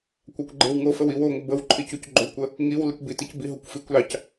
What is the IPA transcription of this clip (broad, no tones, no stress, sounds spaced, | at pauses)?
kʷ ɑ kʷ ɡ͡ǃ e w ŋ o f ə w i w o ŋʷ ə b ə w ǃʰ i c u c ɡ͡ǃ o kʷ ə | ŋ i w l i kʷ b i t i c b i ɦ o kʷ f i kʷ l ɑ c